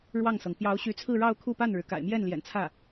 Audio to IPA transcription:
ɻwɑ˥˩ŋsɤ˩ŋ pjɑ˧˥ʊ̯ɕy˧˥t͡sʰɹ̩˥˧ ɻɑ˥˧ʊ̯kʰu˥˧pa˥˩nɻɻ̩˩ ka̰˨˩ɪ̯mjɛ˥˩n ljɛ̰˨˩n t͡sʰä˥˩

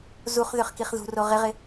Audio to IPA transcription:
zuχ ðʏχkiχðṳro ʁɪʁɪ

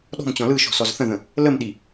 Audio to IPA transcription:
ɗɔ̤mt͡ɕɔ̃ lɯʃɔ̤ sɔzθə̃ðə̃ | ləmɗi

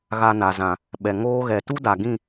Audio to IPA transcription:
ɣa˧na˨zã˨ | ɓɛ˨ŋoː˦ɣɛ˨ tu˦da˨ɡĩ˦˨

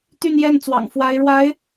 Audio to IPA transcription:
t̪y˥˧njɛ˥˩nt͡swɑ̰˨˩ŋ fwa˧˥ɪ̯ɻwa˧˥ɪ̯

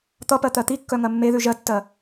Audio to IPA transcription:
t̪ʌpɜ t̪ɜt̪ikːœ ŋɜmːeðʉ ʒɜtːɜ

